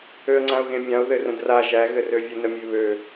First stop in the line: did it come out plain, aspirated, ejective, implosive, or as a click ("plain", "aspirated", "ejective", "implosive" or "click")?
click